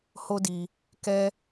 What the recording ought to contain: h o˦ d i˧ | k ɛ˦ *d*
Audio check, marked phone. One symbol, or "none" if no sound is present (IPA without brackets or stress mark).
none